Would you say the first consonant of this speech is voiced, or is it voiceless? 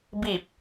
voiced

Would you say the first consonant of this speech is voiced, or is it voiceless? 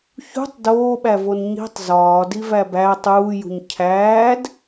voiceless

